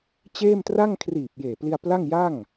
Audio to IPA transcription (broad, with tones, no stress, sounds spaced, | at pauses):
t͡ɕ eː˥˩ m t r a˥˩ ŋ kʰ r iː˨˩ p̚ j eː˨˩ p l i˧ a̯ p l a˥˩ ŋ j a˥˩ ŋ